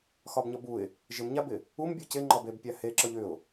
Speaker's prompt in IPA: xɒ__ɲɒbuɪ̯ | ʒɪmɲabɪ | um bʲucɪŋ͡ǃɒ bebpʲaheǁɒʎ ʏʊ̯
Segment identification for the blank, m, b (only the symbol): b